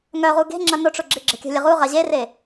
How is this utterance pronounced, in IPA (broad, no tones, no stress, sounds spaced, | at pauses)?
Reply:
ŋ œ ʁ u ɡ e̤ ŋ͡ǁ ɐ n ʊ ʈ͡ʂ ʊ ɡ͡ǁ ɪ ɡ͡ǁ ə̤ kʲ ə̤ lʲ ə ʁ u ʁ ɐ ʑ e r e